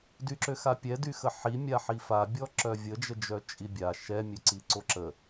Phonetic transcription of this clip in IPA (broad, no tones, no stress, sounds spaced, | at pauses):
d y ǁ ø x a pʲ ɛ d y x ə ħ i mʲ a ħ i f a bʲ ɔ ǁ œ vʲ ə d͡ʒ ə d͡ʒ œ t͡ʃʼ i bʲ a ʃ ɛ mʲ ø ǀ i ǀ o ǁ ə